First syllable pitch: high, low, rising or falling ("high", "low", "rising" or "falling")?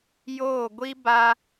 falling